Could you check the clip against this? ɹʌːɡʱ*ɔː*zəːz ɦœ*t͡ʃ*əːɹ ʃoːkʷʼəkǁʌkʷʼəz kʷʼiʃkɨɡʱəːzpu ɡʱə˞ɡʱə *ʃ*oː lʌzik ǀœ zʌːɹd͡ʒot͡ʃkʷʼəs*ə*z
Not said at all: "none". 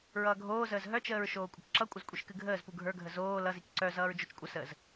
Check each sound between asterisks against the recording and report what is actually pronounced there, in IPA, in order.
oː, t͡ʃ, z, əː

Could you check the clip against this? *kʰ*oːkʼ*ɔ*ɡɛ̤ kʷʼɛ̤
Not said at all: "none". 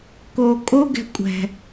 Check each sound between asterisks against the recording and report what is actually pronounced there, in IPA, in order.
k, o

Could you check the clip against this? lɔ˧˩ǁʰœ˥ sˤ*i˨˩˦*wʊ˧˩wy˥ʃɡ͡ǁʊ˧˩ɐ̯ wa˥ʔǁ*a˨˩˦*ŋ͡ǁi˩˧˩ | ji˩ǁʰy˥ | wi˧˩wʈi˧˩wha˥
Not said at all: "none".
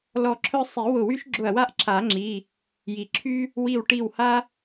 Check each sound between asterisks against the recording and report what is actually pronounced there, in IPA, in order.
i˨˩˦, a˨˩˦

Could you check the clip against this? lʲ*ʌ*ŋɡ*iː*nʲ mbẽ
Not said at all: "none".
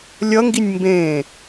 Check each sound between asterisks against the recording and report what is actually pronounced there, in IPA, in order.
ʌ, i

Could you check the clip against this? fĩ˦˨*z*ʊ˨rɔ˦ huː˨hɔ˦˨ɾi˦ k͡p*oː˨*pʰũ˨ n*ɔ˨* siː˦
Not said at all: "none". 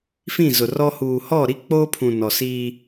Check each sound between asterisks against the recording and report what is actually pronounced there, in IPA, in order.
z, oː˦, ɔ˨

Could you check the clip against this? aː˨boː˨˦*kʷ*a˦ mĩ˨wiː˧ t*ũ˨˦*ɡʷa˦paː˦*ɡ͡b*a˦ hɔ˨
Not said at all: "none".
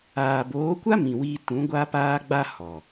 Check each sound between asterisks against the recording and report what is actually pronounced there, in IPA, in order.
kʷ, ũ˨˦, ɡ͡b

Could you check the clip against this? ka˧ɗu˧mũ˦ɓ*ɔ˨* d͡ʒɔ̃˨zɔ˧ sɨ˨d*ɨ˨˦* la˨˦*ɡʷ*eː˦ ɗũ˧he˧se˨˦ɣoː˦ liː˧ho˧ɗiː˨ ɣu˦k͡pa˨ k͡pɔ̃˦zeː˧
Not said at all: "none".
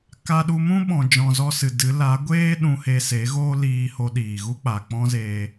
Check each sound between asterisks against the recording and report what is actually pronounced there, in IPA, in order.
ɔ̃˨, ɨ˨˦, ɡʷ

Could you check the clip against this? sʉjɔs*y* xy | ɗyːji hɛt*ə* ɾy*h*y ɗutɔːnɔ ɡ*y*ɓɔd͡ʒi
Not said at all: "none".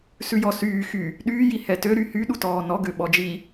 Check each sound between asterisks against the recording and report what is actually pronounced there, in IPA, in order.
yː, ø, h, ø

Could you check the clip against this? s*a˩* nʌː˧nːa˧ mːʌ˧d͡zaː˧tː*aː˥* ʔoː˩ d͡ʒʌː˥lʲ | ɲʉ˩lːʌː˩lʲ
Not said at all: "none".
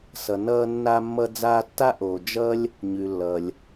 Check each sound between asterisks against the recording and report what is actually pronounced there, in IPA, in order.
ʌ˩, a˥

